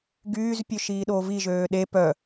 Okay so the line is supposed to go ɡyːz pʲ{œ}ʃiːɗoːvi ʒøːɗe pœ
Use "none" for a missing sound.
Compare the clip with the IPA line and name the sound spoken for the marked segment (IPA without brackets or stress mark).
ø